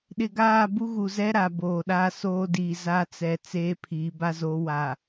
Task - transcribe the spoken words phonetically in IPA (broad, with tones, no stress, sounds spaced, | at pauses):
ɗ ɪ˨ ɡ aː˦˨ b u˦ ɣ u˨ z ɛ˦ ɾ a˨ b oː˨ ɗ aː˦ s oː˦ d iː˨ z a˦ t͡s ɛ˨ t͡s eː˦ pʰ iː˨˦ b a˦ z oː˨˦ w a˨